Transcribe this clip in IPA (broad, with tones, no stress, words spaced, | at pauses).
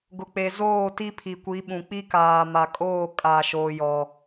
ɡʊ˨k͡pe˨ zoː˦˨ ti˦pʰi˨kʷi˨˦ɓũ˨ k͡pi˦kaː˨ma˨kʼoː˦˨ kʼa˨ʃoː˨jɔ˨